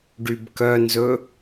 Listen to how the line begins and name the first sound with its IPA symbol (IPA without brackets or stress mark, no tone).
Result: ɖ